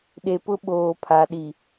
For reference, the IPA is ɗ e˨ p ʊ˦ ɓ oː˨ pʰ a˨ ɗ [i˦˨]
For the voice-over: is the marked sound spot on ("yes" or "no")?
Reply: no